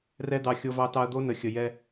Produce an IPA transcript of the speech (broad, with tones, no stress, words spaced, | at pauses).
rɛ˦d̪ɑ˧ xʲo˧vɑ˧tɑ˧ɐ̯d̪o˦ nə˨xʲə˨ jɛ˦